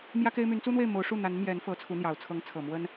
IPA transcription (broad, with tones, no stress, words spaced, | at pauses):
mjä˥ke˥ɪ̯ my˧˥nt͡su˥n̪we˥˩ɪ̯ mo˧˥ʊ̯ ʂu˥˩n̪a˧˥nmjɛ˧˥n fɤ˧˥t͡sʰu˧˥n̪jɑ˨˩ʊ̯ t͡sʰɤ˧˥ŋt͡sʰɤ˨˩mwə˥n